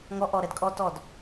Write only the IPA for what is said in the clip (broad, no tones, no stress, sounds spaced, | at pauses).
ŋ ɔ ʔ ɔ ɾ ɛ d kʼ ɔ t ɔ d